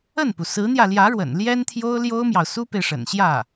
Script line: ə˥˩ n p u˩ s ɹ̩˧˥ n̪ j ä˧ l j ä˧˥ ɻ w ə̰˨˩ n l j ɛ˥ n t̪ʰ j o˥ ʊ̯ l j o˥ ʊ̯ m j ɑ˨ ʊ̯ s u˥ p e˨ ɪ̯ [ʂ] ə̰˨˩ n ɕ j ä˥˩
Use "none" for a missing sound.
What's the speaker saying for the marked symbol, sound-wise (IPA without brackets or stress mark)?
ʂ